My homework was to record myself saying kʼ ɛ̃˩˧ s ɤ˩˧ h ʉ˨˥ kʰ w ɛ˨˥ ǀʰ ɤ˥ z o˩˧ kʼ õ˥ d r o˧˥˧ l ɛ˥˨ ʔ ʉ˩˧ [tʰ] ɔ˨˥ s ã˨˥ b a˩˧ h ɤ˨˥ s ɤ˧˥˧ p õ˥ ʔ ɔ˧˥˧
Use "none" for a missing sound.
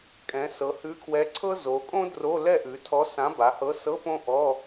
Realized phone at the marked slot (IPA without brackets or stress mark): tʰ